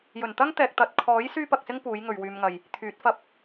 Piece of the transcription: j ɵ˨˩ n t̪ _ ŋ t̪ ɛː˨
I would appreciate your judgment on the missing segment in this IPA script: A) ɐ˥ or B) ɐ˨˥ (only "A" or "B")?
A